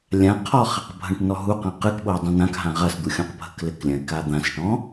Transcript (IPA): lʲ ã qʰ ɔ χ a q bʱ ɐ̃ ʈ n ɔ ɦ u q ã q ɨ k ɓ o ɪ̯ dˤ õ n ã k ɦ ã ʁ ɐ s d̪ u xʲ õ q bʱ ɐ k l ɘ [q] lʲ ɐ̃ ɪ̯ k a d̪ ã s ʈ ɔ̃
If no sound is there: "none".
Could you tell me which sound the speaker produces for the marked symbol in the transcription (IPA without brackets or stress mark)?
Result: k